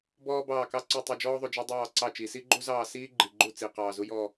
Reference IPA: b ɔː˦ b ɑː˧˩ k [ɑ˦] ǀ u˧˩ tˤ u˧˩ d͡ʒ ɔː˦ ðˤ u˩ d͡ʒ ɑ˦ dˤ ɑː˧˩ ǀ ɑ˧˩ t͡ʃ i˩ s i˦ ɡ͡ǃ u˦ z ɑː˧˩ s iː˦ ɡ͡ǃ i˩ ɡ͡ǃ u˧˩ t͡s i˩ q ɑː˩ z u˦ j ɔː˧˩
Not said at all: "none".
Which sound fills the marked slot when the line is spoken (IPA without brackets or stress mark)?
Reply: ɑ˦